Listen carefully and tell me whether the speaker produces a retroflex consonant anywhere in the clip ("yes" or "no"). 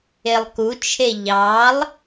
no